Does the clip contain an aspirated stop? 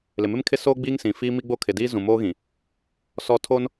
yes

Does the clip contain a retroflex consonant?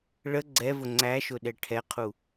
yes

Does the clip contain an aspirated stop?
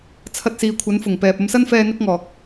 yes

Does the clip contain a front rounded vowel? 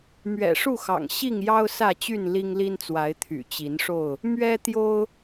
yes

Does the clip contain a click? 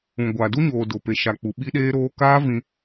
no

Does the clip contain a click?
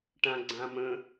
yes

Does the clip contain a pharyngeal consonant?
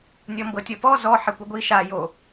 yes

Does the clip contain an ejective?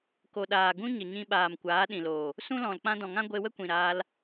no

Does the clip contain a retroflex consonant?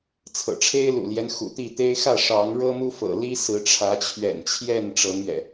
yes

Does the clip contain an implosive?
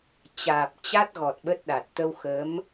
yes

